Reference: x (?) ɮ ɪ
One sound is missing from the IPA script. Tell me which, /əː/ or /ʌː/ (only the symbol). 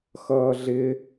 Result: ʌː